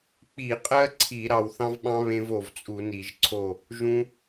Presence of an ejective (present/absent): present